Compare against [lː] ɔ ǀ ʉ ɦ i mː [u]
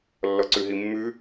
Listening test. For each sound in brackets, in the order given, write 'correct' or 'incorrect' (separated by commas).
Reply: correct, incorrect